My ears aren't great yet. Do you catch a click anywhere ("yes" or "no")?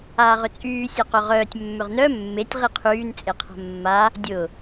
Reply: no